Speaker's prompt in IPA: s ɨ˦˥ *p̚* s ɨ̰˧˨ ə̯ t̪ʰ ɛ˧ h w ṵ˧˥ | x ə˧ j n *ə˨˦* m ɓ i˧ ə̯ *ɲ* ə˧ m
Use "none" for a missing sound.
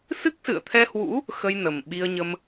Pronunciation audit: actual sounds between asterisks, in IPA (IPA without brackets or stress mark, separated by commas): k̚, ə˨˩, ɲ